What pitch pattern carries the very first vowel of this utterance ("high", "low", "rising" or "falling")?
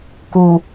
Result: low